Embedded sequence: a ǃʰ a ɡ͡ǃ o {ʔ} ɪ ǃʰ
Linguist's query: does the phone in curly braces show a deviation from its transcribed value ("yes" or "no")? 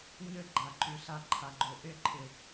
no